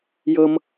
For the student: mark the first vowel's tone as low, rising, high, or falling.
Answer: high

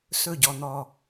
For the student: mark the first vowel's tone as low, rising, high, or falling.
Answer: falling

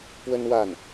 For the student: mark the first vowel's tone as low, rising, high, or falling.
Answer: high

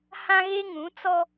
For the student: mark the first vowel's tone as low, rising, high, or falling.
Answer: high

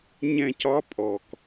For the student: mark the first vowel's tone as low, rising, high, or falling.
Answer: falling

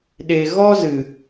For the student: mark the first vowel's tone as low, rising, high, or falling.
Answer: low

